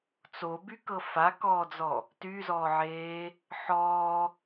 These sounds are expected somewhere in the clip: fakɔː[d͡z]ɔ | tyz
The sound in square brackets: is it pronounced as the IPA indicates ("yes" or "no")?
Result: yes